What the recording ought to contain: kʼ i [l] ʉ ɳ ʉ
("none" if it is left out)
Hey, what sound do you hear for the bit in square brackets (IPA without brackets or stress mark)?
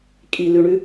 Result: l